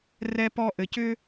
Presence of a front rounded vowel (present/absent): present